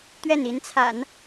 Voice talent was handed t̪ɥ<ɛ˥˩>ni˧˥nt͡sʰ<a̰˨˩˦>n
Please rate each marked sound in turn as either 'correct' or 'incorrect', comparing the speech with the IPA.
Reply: correct, correct

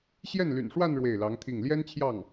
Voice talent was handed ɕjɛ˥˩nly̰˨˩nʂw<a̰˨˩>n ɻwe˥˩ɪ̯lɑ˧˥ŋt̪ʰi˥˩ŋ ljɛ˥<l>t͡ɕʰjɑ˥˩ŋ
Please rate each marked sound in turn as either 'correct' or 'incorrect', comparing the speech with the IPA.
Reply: incorrect: a˥˧, incorrect: n

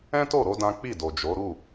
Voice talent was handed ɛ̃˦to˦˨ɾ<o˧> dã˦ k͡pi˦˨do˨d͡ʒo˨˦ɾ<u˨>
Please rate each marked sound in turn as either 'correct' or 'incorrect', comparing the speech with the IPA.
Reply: correct, incorrect: u˦˨

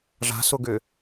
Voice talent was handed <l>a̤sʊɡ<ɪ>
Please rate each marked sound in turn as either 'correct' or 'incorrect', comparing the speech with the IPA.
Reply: incorrect: ʐ, incorrect: ʏ

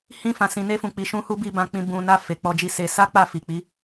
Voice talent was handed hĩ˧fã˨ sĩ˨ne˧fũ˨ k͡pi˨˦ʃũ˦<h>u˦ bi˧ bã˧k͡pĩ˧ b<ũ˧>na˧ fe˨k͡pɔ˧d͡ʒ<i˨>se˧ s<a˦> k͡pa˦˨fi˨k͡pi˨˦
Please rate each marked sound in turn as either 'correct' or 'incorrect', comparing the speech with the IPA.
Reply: correct, incorrect: ũ˨, incorrect: i˧, correct

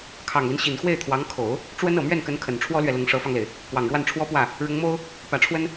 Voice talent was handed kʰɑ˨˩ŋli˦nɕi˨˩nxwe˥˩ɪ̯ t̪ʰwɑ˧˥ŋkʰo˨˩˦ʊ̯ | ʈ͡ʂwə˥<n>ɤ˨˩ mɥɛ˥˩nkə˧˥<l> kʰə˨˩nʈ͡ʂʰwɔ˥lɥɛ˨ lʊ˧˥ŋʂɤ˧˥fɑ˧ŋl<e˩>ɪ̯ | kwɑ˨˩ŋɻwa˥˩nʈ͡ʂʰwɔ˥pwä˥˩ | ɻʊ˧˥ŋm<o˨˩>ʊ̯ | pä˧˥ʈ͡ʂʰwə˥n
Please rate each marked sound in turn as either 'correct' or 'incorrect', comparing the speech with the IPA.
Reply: correct, incorrect: n, correct, incorrect: o˥

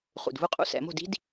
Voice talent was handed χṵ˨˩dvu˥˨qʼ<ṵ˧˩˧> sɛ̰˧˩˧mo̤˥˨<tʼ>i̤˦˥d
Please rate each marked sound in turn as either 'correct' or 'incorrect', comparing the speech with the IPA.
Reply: incorrect: ṵ˦˥, incorrect: d

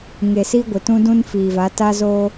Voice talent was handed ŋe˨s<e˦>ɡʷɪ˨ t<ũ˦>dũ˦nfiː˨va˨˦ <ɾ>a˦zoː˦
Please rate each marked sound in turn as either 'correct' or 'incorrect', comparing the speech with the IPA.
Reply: incorrect: i˦, correct, incorrect: t

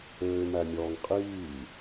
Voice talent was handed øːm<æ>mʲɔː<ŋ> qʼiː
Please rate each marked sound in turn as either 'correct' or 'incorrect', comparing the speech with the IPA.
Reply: correct, correct

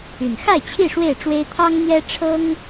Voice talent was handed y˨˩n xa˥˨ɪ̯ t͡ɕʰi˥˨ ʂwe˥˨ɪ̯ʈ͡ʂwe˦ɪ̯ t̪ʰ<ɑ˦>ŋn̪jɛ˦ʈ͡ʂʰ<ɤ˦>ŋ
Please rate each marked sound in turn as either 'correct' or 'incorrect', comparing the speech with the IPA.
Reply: correct, correct

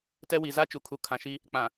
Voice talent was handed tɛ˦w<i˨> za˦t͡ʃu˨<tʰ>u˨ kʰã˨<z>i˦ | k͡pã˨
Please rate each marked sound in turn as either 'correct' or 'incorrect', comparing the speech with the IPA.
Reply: correct, incorrect: kʰ, incorrect: ʃ

